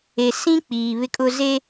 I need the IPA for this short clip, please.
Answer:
e˨ sĩ˦ k͡piː˨βɪ˦kʼʊ˦ ze˦

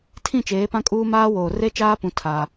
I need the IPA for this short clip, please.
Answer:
tʰĩ˦˨t͡ʃeː˨˦pã˦kʼuː˦ maː˦woː˨ re˦t͡ʃaː˦pũ˨ tʰa˦

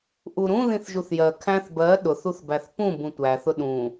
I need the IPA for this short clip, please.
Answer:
ʔuɾũ ðĩθʒuθjɜ kʰæ̃θ bɜ ɗʊθuθbæθ pũ bũtʷæθʊ ɗũ

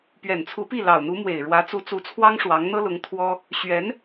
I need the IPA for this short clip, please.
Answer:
pɥɛ˨˩nt͡sʰu˧˥pi˥˩ lɑ˨˩ʊ̯n̪u˧˥mwe˨˩ɪ̯ ɻwä˧˥t͡su˧˥t͡su˧˥t͡sʰwɑ˥ŋ ʂwɑ˧˥ŋ n̪ɤ˥lʊ˧˥ŋ t̪ʰwɔ˥ | ɕɥɛ˧˥n

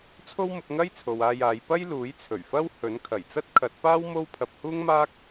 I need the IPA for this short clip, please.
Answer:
t͡sʰo˥wmʊ˧k̚ŋɐ˥j t͡sʰo˨waː˧jaː˨˧j pɐ˥jluː˨˥jt͡sʰɵ˨˩ɥfɐ˥w hɵ˨˥nkʰɐ˨˩j t͡sɐ˥t̚kʰɐ˨˥t̚paː˥w mo˥wpʰɐ˧p̚ huː˥ŋmaː˥k̚

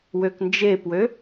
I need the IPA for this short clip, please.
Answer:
wøknd͡ʒepwø

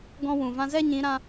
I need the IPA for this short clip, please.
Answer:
ɡɔ̃˧wũ˨ vã˧zɛ˦ɲĩ˨˦ɾã˧

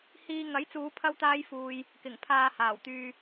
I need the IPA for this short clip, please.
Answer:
hiː˧ ŋɐ˨˥jt͡suː˨˧ pʰɐ˥wt̪aː˥jfuː˧j | kɪ˨˩ŋ pʰaː˧haː˨˩wt̪yː˧

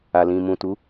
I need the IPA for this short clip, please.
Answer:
a˨lĩ˨ mũ˨tu˨˦

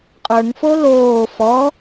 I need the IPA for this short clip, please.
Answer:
qʼə˞ŋfo loː fɔ

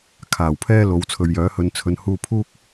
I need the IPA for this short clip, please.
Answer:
kʰaː˨˩wpʰɛː˥lo˨˧w t͡sʰɵ˨ɥ jœː˨˥ hɵ˧n t͡sʰɵ˧n huː˧pʰuː˥k̚

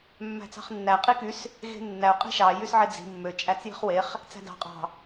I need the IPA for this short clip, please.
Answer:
mːæ̤t͡sɑ̤χnːæ qʼikys | ɣe̤nːæʊ̯ qʼi̤ʃɑ jysʕed͡zi̤ mːø t͡ʃʼæt͡sji̤χweχ | t͡sæ̤dɑ̤ qʼɑ̤

